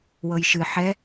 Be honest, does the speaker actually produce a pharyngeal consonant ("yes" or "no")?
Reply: yes